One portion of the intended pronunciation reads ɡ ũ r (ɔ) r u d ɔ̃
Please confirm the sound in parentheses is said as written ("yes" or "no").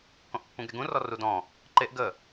yes